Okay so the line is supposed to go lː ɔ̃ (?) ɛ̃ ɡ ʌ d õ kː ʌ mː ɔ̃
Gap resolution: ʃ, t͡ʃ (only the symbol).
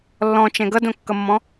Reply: t͡ʃ